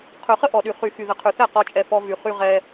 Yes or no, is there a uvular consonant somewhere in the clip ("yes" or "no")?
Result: yes